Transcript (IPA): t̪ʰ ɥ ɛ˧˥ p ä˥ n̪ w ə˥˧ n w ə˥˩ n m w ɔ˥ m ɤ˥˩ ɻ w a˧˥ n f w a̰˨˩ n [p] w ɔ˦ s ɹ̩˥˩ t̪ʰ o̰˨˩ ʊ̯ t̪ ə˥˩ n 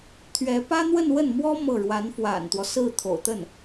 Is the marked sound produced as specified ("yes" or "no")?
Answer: no